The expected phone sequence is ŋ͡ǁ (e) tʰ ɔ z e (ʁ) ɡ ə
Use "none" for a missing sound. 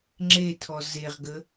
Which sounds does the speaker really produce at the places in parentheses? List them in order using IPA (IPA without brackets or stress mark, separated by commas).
e, ʁ